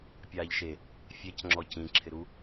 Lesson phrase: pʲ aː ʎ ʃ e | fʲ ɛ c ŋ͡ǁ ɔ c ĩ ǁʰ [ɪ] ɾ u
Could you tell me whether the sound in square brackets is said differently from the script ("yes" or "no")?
no